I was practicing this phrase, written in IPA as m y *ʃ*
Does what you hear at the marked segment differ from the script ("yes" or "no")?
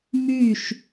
no